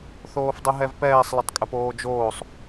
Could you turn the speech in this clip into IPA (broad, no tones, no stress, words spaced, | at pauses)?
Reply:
θoːfdˤɯɦɛvpɛːsˤ lətˤkʼəpoːd͡ʒoːsˤ